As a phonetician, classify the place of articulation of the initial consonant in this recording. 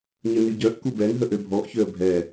palatal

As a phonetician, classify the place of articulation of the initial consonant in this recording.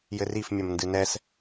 palatal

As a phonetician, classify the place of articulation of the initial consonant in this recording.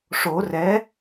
retroflex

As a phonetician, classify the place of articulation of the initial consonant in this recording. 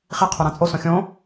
uvular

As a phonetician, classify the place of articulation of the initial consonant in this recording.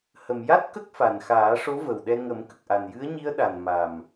glottal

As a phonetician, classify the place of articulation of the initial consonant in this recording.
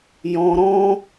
palatal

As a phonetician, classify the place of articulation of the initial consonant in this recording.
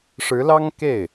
retroflex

